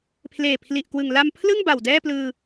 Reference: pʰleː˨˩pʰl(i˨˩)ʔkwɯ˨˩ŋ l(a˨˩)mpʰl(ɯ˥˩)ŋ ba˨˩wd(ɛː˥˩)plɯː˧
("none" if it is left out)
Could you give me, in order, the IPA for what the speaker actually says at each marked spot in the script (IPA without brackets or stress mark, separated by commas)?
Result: i˨˩, a˧, ɯ˥˩, ɛː˥˩